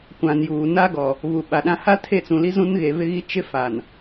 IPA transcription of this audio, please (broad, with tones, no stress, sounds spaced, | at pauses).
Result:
kʷ ã˨ n j uː˨ n a˦ ɡ ɔ˨ | v u˨ ɓ a˨ ɗ ã˦ h a˦ tʰ e˦˨ t͡s ũ˨ l i˦ z ũ˦ n ɣ e˨ v ɪ˦ ɣ i˦ t͡ʃ ɪ˦ f a˨ n